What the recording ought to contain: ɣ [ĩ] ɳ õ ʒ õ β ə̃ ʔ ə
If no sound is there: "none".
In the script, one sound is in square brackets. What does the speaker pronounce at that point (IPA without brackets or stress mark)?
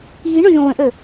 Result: i